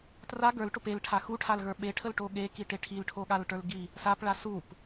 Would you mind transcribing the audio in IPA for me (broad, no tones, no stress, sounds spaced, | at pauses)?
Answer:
t r a ɡ ə˞ l ʈ o p e l ʈʰ a x u ʈʰ a l ɣ ə˞ ɓ e ʈʰ ə l ʈ o ɠ e k i ʈ e ʈʰ i l ʈʰ o ɠ a l ʈ ə˞ l ɡ i | s a p ɭ a s u p